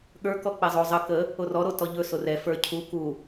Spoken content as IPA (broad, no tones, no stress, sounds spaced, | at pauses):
ɠ ə˞ k ɔ k͡p ɛ zˤ o zˤ ə k ə | o r ɔ ɾ o t ɔ ʎ ɵ s o r ɛ f ə˞ cʰ u k u